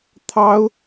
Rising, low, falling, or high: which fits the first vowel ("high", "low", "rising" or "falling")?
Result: high